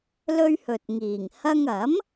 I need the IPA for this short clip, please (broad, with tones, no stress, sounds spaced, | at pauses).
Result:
l ɵ˥ ɥ h ɵ˨ t̚ ŋ iː˨˩ ŋ h ɐ˧ ŋ ɐ˨˥ m